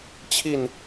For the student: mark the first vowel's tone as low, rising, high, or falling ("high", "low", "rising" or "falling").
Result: falling